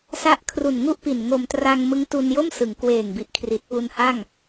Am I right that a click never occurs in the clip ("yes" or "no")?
yes